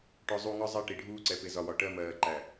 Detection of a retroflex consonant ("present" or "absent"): present